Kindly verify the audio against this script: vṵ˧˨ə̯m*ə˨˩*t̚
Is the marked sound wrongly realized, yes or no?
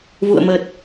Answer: no